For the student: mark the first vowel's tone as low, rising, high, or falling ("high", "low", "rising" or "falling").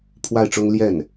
falling